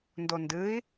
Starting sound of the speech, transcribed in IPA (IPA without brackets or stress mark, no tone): n